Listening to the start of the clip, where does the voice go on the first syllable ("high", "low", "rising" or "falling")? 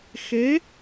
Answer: rising